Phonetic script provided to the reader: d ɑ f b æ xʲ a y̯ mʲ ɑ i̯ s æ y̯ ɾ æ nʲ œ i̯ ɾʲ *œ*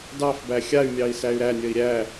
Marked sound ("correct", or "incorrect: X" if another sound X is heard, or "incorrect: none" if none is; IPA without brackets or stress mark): incorrect: æ